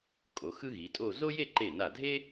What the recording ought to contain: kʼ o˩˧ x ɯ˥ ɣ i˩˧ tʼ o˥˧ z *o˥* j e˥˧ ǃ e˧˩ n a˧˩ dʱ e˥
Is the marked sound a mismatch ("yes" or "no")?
no